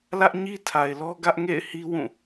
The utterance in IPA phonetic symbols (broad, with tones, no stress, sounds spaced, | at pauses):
l ä˦ ʔ ɲ i˦ tʰ a˨ ɪ̯ l ɔ˦ ɡ ä˦ ʔ ŋ ḛ˦˨ ɪ̯ h i˦ w ũ˦˨